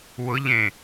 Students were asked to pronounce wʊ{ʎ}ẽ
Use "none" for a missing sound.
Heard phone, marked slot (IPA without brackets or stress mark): ʎ